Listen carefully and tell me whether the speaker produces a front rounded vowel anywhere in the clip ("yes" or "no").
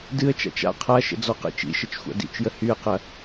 yes